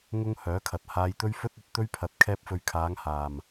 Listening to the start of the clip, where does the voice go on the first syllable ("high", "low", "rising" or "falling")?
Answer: high